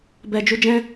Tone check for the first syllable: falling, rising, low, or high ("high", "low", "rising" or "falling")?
low